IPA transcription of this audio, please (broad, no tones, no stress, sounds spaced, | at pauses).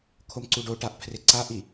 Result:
kʰ o m ǀ u ɖ o ʈ a ʔ pʰ r ɪ ǀ a ʔ i